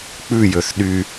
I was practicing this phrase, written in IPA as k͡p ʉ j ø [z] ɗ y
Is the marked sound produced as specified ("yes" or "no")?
no